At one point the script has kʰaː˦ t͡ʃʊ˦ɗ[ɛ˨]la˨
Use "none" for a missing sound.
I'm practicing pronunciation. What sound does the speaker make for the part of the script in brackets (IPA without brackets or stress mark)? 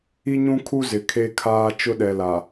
ɛ˨